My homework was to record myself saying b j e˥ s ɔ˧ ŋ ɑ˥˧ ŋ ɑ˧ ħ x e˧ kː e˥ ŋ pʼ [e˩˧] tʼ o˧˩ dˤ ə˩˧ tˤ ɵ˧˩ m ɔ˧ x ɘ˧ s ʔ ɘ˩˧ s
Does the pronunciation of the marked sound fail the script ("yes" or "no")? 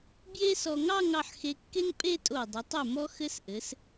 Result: yes